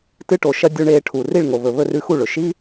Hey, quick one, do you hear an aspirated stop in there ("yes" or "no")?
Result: yes